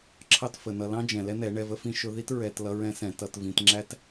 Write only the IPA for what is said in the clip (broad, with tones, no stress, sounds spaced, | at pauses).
ǁʰ ɑ˦ t f ə˨ n ʌ˧ l ɑ̃˦ d͡ʒ ɛ̃˨ l ɛ˦ n ɛ˨˦ ɳ ɛ˧ v ə˦ f ĩ˦ ʃ ʊ˦ ð i˦ t ɹ ɛ˧ t l ʌ˦ ɹ ɛ̃˦ s ɛ̃˧ t ʌ˧ t v ĩ˧ t ŋ͡ǁ æ˦ t